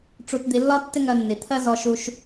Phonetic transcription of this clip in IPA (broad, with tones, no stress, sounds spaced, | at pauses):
ʈ͡ʂ u˧ t d̪ i˧ lː ɒ˥ tː ɪ˥ ŋ ɜ˧ nː i˩ t̪ʰ ɜ˥ z ɔ˧ ʃ u˧ ʃ